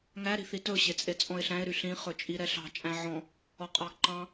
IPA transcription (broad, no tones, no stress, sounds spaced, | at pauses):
ŋ æ ɾ i̤ θ i t ɵ ɕ e t͡sʼ e t͡sʼ ɔ̃ ɪ̯ ɬ æ̃ ɪ̯ ɾ y ɬ ĩ χ ɵ t͡ʃʼ i ɾ ɛ ɬ ɑ̤ t͡ʃʼ æ̃ ʕ ɔ̃ | ɔ qʼ ɑ ɡ ǃ ɑ̃